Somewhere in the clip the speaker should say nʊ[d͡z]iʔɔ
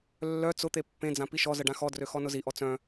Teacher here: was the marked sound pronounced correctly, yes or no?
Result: no